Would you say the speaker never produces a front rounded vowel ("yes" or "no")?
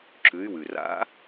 no